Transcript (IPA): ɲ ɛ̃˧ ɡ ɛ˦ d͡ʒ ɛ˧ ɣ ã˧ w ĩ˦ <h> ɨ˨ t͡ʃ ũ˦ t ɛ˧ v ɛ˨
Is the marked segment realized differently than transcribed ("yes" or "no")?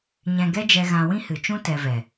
no